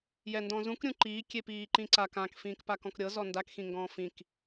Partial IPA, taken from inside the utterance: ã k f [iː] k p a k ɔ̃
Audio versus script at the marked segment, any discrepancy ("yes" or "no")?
yes